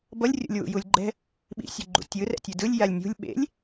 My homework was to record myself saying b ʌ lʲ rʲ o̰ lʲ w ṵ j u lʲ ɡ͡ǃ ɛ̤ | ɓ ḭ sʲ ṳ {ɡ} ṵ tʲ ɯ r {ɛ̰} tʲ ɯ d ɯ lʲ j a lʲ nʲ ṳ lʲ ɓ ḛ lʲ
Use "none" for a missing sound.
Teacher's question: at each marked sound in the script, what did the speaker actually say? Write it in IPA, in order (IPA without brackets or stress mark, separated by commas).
ɡ͡ǃ, ɛ̰